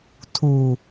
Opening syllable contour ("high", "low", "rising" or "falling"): low